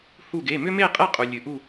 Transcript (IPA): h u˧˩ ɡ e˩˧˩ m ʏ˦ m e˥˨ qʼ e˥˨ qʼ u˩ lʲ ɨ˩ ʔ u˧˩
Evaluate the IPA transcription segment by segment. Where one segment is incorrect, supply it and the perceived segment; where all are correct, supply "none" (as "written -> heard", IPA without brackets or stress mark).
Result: none